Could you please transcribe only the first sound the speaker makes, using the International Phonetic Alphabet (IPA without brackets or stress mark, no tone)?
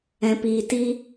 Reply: ɛ̃